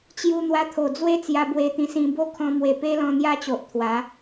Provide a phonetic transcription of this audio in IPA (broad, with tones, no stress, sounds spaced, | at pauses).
t͡ɕ j u˧ n̪ w a˧ t̪ʰ o˨˩ d͡z w e˦ t͡s j a˧ b w e˧ t̪ ĩ˧ s ĩ˧ b o˦ kʰ ɔ̃˧ m w e˨˩ p e˦ l ɔ̃˧ n̪ j a˦ t͡ɕ o˨ ʔ t̪ʰ w a˨˦